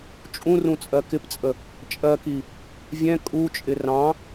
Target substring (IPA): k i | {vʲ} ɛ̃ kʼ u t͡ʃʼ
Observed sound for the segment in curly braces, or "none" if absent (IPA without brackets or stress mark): vʲ